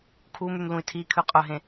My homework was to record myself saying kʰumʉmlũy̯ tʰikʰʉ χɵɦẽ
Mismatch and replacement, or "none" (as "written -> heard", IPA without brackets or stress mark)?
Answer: χ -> qʼ